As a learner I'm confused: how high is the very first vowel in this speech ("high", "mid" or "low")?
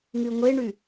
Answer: high